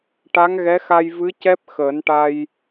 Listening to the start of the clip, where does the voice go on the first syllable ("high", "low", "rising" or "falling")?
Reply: rising